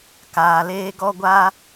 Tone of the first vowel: low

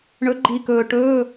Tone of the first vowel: rising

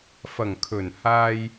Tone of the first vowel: low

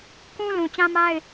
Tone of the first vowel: high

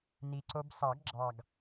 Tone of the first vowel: low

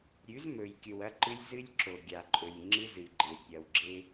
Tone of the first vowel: rising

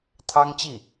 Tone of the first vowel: high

